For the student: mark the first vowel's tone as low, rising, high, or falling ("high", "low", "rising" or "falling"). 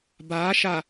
rising